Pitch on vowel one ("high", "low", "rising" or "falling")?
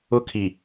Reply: high